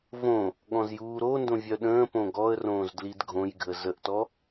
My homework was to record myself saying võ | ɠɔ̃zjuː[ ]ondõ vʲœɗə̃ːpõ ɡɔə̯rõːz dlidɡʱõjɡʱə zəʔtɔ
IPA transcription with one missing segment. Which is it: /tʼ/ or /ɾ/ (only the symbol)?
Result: ɾ